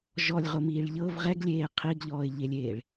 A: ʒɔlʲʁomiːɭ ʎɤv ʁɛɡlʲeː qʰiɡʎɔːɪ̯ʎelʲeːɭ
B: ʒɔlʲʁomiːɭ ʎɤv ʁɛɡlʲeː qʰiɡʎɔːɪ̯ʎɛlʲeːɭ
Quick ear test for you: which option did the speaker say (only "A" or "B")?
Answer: A